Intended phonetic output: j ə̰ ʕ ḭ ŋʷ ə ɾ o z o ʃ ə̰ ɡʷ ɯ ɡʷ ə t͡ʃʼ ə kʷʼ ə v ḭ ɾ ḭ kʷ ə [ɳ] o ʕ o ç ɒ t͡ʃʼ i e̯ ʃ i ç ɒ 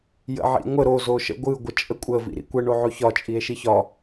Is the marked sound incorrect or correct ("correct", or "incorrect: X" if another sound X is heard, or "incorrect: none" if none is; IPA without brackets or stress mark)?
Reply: correct